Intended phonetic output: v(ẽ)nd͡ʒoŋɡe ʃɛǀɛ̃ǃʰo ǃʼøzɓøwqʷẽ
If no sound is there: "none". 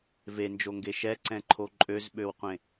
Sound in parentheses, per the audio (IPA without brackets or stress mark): e